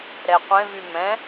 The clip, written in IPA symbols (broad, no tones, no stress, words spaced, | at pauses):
ɾɛqʷẽ vymɛ̃